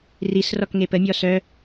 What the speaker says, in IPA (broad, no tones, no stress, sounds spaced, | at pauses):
r i s r ɔ k ŋ e p ə mʲ ɔ s œ